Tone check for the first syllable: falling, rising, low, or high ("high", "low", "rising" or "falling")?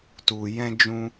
low